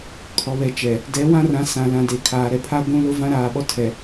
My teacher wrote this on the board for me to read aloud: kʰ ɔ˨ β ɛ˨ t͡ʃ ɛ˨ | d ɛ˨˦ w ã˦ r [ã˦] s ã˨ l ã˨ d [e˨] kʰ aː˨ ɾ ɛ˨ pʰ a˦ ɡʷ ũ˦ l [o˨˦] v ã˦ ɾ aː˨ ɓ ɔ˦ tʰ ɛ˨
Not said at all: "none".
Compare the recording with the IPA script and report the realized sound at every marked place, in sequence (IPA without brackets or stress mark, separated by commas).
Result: ã˨˦, e˨, o˦